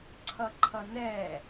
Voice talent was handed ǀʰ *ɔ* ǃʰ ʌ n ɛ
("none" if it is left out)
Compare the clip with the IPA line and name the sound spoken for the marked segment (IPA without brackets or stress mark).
ʌ